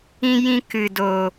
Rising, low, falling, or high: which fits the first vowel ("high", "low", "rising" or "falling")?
high